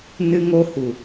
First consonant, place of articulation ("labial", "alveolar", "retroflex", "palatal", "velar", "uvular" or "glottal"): alveolar